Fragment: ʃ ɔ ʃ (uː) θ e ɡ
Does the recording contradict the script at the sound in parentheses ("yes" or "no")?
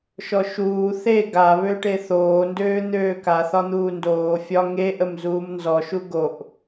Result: no